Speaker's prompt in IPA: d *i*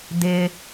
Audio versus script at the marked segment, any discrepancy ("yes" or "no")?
yes